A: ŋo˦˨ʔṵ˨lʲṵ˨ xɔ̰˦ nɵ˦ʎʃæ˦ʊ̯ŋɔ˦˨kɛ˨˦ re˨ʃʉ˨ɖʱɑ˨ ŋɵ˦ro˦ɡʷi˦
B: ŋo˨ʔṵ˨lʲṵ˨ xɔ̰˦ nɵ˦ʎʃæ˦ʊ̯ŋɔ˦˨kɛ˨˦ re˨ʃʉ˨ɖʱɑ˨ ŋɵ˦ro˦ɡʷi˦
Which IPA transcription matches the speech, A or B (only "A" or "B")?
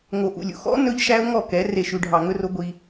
B